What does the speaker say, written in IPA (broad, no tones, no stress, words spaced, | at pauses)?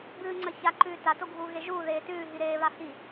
bɨːŋ͡ǀɐ çaǃʉː tato ɡʱuːɣeʒuː ðeːtʉː ɦiɾeːβa hi